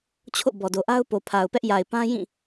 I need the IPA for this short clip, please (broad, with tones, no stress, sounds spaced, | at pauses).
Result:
t͡ɕʰ o̰˦˨ b ɔ˨ d o˨ ʔ a˦ ʊ̯ p o˨ pʰ a˨ ʊ̯ p ɛ˦ ʔ j a˨ ɪ̯ p ã˦ j ĩ˦˨